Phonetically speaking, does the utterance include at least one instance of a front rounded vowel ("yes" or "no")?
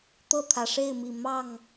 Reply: no